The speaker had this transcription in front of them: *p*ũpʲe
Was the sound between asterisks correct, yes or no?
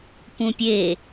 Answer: yes